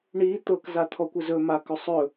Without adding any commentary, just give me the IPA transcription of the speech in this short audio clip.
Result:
ɳ i t̪ ɤ k z a t̪ʰ ɔ kʷ ə z ɵ m a k ɵ sˤ ɵ

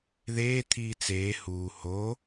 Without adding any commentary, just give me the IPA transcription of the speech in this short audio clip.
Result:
ð eː t̪ʰ iː t͡s eː h uː h o

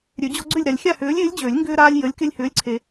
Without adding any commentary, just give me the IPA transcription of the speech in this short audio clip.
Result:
ɾʲ ø˨˩˦ d͡ʑ ɔ˦ ɡ͡ǀ ʏ˥˨ lʲ ɾ a˨ lʲ xʲ a˥˨ h ʏː˨˥ lʲ ɪː˨˥ lʲ d͡ʑ ø˨˩˦ lʲ ŋ ɡ ʏː˦ ɾ aː˦ lʲ j ə˨˥ lʲ k ɪ˦ lʲ h ʏː˨˥ lʲ ǀʰ e˨

